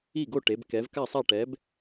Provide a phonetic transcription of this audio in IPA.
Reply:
i˥˩ ɡ o˥˩ ʈ e˩˧ b k ɛ˩˧ v k a˥˩ sˤ a˥˩ ʈ ɛ˨˥ b

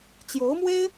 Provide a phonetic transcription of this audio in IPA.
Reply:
t͡ɕ j o˧˥ ʊ̯ m w e˥ ɪ̯

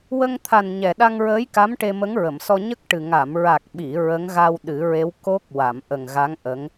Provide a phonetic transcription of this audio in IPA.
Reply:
w ə˧ ŋ t̪ʰ a˨˩ n ɲ ɛ˨˩ ɗ a˧ ŋ ɹ əː˧˥ j k a˧˥ m ʈ e˧ m ə˧˥ ŋ ɹ ə˨˩˨ m s ɔ˧ ɲ ə˦˥ k̚ ʈ ɨ˨˩ ŋ a˨˩˨ m ɹ a˨˩ k̚ ɓ i˨˩˨ ɹ ə˧˥ ŋ ɣ a˧ w ɗ ɨ˨˩˦ ɹ e˧˥ w k o˦˥ k̚ w a˨˩˨ m ʔ ə˨˩ ŋ ɣ a˧˥ ŋ ʔ ə˧˥ ŋ

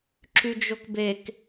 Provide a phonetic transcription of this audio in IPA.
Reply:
ǁ y d͡ʒ o k b e k

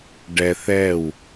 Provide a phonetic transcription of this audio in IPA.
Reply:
ɖ ɛ θ ɛ w

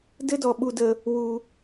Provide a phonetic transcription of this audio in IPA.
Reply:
d ɘ˦ d ɔ˨ ɓ u˨ d ə˨ | w u˨

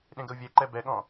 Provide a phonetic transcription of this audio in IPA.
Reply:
ɗ ẽ ɡ ə u̯ vʲ ɛ ǃ ɛ b ɛ ɠ ɔ̃

